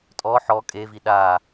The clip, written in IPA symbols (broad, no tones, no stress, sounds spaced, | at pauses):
tʼ ɔ ħ ɔ kʼ e v i ɗ a